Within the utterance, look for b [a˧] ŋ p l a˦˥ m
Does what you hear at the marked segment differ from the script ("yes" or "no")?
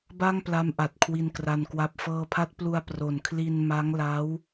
yes